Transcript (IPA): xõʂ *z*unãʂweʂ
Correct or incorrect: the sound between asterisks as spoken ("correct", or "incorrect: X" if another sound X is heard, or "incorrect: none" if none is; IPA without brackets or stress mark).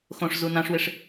correct